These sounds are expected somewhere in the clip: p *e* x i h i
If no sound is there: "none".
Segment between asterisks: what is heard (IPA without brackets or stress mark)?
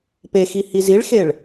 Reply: e